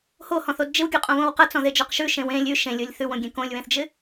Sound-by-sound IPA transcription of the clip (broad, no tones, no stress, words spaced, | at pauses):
hohɔ̃θod d͡ʒɪwɡʲuqʼõβõw qɐt͡sɔ̃ðed͡ʒɔq ʃʉʃẽw ẽ lʲʉ ʃẽlʲolʲ θʉwõɡʲẽ kõlʲwẽθd͡ʒɪ